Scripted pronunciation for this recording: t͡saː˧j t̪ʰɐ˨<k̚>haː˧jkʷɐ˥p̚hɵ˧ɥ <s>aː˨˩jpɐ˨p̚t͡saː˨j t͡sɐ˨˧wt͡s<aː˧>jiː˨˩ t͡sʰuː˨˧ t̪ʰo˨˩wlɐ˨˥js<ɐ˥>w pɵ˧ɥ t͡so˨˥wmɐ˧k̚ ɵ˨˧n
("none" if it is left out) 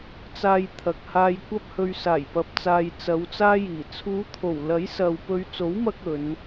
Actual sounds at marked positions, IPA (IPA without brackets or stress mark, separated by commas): k̚, s, aː˥, ɐ˨